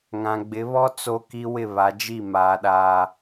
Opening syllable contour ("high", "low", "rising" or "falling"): low